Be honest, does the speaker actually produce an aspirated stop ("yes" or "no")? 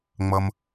no